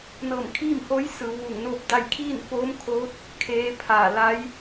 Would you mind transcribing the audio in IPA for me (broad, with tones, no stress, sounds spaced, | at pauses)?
n ɤː˧˩ m kʰ iː˥˨ m h o˧˥ j s ɯː˩˧ w ʋ uː˧˩ ŋ n oː˥˨ p̚ d a˥˨ j kʰ iː˥˨ n f oː˧˥ m kʰ oː˧˥ t̚ | kʰ eː˧˥ pʰ aː˧˩ l a˧˥ j